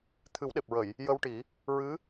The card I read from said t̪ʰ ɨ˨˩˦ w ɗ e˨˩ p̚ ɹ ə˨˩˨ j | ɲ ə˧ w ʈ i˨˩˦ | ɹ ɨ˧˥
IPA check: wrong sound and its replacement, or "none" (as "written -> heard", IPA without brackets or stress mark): ɲ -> j